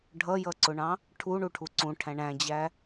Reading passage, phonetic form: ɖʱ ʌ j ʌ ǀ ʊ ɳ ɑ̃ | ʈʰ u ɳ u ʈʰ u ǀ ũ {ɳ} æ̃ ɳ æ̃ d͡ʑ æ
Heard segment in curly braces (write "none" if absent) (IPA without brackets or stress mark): ʈʰ